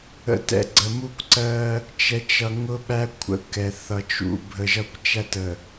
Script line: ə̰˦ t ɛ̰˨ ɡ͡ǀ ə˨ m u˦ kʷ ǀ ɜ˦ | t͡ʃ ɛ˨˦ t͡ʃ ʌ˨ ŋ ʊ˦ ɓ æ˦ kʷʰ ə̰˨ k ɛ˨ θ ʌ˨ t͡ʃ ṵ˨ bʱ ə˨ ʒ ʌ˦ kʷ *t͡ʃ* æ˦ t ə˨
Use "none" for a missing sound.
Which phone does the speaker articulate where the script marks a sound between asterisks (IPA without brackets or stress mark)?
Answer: t͡ʃ